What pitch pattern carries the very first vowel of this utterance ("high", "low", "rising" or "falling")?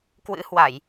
rising